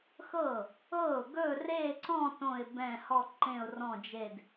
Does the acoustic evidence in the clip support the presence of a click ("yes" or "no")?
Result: yes